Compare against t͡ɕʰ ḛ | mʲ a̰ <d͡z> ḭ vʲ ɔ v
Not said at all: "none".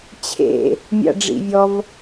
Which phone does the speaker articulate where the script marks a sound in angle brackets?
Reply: ɖ͡ʐ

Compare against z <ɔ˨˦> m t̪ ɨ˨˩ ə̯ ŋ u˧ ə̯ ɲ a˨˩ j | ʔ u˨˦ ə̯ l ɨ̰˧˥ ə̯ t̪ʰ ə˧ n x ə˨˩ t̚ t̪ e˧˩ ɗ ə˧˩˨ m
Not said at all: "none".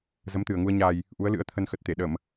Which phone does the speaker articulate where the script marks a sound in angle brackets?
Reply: ə˨˦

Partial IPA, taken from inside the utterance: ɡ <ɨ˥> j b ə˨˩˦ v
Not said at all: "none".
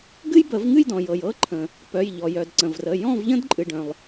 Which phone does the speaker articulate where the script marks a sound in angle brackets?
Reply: ɨ˥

